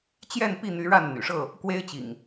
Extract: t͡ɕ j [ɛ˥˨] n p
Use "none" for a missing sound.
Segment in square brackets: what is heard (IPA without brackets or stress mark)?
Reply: ɛ˥˨